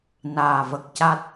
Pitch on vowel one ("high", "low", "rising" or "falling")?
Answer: low